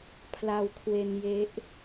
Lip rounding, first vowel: unrounded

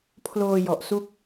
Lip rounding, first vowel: rounded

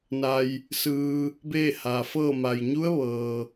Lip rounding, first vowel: unrounded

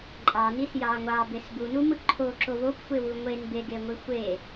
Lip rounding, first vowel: unrounded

